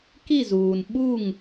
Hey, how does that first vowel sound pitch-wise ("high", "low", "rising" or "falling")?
falling